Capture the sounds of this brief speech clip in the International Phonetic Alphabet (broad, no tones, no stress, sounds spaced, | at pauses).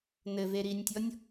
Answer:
n ɘ v e ɾ i nʲ tʲ ɔ nʲ